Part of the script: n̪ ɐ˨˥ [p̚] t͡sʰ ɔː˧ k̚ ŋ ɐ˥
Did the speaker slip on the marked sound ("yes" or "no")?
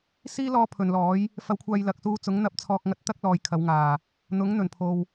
no